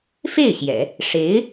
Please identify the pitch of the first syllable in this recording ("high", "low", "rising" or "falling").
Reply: falling